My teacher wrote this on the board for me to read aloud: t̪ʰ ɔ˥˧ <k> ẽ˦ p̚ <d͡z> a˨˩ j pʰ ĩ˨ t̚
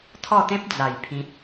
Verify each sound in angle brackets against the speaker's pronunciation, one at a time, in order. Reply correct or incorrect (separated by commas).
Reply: incorrect, correct